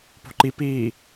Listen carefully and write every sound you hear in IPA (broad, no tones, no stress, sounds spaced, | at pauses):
p o̤ ǃ i p iː